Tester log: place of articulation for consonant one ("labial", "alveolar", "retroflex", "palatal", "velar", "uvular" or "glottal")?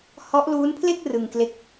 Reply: glottal